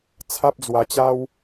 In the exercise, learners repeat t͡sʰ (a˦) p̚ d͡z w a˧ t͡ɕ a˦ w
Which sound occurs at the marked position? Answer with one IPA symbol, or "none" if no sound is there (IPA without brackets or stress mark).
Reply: a˦